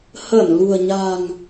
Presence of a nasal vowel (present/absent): absent